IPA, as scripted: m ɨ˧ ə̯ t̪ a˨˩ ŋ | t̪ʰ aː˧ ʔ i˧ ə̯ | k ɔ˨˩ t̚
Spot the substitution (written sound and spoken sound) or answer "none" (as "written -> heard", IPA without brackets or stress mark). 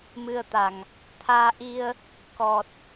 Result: none